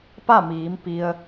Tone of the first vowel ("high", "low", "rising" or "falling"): falling